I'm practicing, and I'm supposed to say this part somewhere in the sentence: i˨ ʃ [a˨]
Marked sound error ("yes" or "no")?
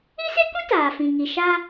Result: yes